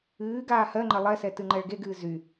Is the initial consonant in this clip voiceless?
no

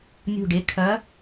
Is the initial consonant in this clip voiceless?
no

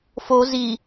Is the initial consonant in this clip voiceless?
yes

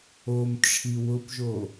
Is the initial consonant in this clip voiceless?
no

